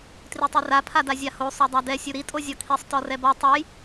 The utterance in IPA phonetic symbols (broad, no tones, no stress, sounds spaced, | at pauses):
t r i tˤ e r a pʰ a d a zʲ a h o sˤ o dˤ a d ɛ sʲ u ɾ i tʼ o zʲ ɔ kʰ i sˤ t ɔ r ɛ b ɔ tˤ ɛ j